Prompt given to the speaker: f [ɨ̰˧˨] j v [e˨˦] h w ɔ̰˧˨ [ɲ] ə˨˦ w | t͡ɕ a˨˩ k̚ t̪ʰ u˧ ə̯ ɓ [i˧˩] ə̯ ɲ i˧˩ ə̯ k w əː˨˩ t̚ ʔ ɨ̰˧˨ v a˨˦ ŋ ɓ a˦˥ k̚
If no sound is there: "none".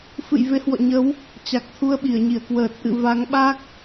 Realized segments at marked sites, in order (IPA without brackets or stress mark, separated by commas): ɨ̰˧˨, e˨˦, ɲ, i˧˩